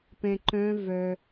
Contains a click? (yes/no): yes